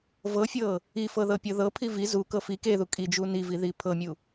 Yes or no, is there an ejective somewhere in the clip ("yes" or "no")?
yes